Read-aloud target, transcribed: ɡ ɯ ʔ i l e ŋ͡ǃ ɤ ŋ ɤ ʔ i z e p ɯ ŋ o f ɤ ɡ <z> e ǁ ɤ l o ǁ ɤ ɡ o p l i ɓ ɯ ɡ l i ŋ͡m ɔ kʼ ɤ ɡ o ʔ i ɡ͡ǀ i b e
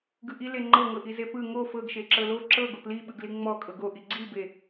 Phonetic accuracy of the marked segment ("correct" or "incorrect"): incorrect